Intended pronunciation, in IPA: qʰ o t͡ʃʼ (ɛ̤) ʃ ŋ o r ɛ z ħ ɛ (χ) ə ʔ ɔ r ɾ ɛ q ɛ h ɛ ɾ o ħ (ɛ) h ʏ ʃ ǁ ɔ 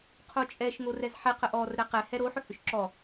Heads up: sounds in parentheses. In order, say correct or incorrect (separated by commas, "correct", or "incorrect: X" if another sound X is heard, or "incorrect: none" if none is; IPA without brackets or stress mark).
incorrect: ɛ, incorrect: q, incorrect: ʏ